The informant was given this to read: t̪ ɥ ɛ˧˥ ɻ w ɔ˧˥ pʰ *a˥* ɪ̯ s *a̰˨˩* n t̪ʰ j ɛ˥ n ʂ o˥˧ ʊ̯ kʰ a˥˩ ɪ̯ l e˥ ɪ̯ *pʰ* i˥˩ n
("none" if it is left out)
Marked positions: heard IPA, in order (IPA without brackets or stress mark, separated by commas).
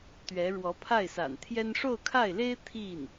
a˥˩, a̰˨˩, t̪ʰ